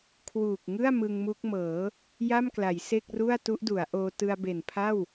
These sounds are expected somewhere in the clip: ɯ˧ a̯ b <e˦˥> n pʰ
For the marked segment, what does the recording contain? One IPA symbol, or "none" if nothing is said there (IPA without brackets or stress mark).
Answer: e˨˩